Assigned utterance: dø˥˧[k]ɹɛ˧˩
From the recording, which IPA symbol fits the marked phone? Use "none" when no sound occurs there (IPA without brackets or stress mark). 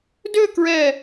k